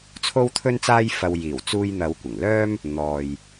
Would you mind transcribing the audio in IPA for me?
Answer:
t͡sʰ o˥ w t̪ʰ ɵ˥ n t͡s aː˥ j f ɐ˧ w j iː˨˩ w t͡s uː˧ j n̪ ɐ˨˧ w kʷ ɪ˨˩ ŋ l œː˥ m | n̪ ɔː˨ j

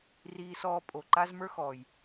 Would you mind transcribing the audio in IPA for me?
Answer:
r iː˧ s ɔː˧ pʼ o˨ ǃ a˦ z m ə˞˦ x ɔː˨ j

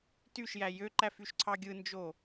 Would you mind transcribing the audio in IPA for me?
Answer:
t y ʃ j æ j ø ǃ æ f y ʃ ǀʰ ɑ ɡʲ ɯ n d͡ʒ o

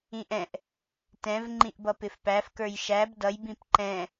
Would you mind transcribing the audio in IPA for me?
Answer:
ĩ ʔ ɛ̃ ʔ | t ɛ̃ v ŋ͡ǃ ĩ ʔ b ʌ p ɪ f p æ f k ə˞ j ʃ æ b d ʌ j b ĩ p ǃ ɛ̃

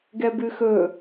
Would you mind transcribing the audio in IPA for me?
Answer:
ɡ ɛ b ʉ x ɵ

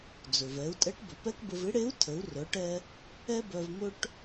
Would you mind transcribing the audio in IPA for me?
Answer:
d͡z ɵ˩ v ɛ˩˧ u̯ tʼ ɛ˧˥ ʈ b ɵ˩ p ɛ˥ k b ə˧ v ɪ˧˥ ɽ e˧˥ u̯ tʰ ə˩˧ u̯ r œ˩˧ ʈ ɛ˧ | ɛ˥ b œ˧ v m ɵ˥ ʈ

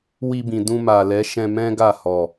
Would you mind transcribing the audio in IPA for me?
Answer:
w i˧ b ĩ˨ d ũ˧ m a˨ l ɛ˨˦ ʃ ɛ̃˧ m ɛ̃˦ ɡ a˦˨ h ɔ˨

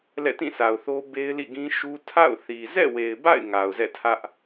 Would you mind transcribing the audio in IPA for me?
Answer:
l ɛ̰˦˨ t ĩ˦˨ sʰ a˨ ʊ̯ θ o˦ b e˦ ɪ̯ l ḭ˦˨ ɡ ĩ˦ ʃ u˦ tʰ a̰˦˨ ʊ̯ θ i˨ z ɛ̰˦˨ w e˨ ɪ̯ b a̰˦˨ ɪ̯ ŋ a˨ ʊ̯ z ɛ̰˦˨ tʰ ä˦ ʔ

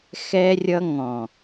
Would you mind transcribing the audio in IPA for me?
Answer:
x ɛ˧ rʲ ʌ˧ ŋ ɔ̃˨

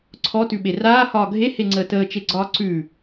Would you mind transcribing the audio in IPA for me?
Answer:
ǀʰ ɔ t ʉ ɓ e r aː h ɒː ɡʱ e h e ŋ͡ǀ əː t əː t͡ʃ e ɡ͡ǀ ɒː ǀ ʉ

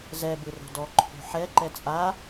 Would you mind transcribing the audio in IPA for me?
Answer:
z ɛ b ɯ r o̤ d ɔ ǃʰ o̤ ħ ɛ ǃ ɛ t͡sʼ a

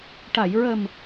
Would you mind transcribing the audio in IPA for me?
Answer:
ʈ a˨˩˨ j ɹ ə˨˩ m

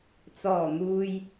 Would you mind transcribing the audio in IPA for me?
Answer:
t͡s ɔː˨˩ n̪ uː˨ j

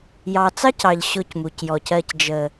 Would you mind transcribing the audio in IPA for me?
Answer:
j ɑ˨ t͡s ɑ˦ c ɑ˨ ʎ ɕ ʊ˦˨ c m u˨ c j ɔ˨ c ɜ˨ c d͡ʒ ə˨

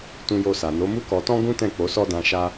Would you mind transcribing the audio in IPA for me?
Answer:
t ũ˧ j o˧ s a˨ n o˨˦ m u˦ k ɔ˧ t ɔ̃˦ ɡ ũ˦ t ɛ̃˦˨ k͡p o˨˦ s ɔ˦ d ã˧ ʃ a˧

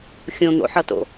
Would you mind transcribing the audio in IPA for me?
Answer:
xʲ õ n̪ o̰ ħ ʌ t o̰

